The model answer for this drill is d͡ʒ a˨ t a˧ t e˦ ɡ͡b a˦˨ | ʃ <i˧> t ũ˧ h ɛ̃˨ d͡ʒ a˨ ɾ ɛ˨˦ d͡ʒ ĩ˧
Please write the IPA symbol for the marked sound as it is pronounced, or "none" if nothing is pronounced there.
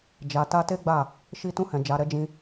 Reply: i˧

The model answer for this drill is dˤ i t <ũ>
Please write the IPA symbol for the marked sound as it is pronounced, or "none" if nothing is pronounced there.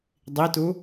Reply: u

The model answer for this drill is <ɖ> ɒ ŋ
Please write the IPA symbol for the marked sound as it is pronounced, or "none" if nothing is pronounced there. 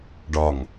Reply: ɖ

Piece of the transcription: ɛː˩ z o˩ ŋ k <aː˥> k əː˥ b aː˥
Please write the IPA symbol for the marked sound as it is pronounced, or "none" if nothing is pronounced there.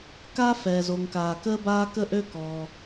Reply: aː˩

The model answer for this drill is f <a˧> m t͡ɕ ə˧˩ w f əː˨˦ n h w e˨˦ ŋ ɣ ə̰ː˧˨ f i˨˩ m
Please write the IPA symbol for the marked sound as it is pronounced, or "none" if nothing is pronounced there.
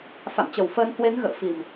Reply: a̰˧˨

